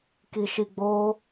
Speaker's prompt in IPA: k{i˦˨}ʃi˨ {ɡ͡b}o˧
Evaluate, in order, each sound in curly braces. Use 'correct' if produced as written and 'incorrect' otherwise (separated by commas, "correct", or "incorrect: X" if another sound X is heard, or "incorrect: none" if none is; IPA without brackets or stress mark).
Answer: incorrect: i˨, correct